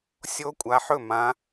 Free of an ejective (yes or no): no